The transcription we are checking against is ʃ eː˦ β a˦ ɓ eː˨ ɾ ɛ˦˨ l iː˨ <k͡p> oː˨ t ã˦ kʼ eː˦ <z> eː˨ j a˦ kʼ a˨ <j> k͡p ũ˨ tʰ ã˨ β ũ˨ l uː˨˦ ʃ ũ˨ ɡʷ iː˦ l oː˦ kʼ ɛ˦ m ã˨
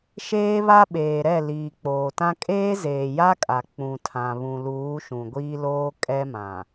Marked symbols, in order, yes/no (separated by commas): yes, yes, no